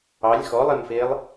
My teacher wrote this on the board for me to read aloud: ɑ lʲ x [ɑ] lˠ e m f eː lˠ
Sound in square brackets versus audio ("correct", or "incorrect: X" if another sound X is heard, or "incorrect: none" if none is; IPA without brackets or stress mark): incorrect: ɔ